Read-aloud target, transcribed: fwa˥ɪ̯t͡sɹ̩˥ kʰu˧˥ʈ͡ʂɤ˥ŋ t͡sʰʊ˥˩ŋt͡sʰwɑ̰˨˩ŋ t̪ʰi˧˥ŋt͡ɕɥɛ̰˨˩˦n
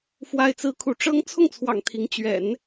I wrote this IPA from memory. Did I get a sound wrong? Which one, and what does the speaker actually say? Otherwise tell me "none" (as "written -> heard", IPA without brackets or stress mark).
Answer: none